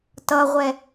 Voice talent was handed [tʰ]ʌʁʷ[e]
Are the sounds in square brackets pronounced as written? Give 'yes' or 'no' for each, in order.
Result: no, no

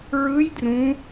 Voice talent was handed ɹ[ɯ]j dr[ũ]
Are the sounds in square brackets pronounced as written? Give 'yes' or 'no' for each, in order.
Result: yes, yes

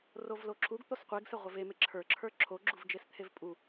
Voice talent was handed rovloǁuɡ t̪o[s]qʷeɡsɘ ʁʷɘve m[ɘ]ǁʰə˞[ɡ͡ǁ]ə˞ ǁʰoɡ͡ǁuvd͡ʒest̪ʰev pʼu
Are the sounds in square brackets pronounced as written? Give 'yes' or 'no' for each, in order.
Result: yes, no, no

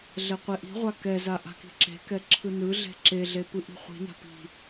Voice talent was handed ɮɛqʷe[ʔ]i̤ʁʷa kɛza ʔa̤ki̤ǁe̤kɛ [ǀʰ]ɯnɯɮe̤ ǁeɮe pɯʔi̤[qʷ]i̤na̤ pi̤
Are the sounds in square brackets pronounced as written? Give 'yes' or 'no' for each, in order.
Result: yes, no, no

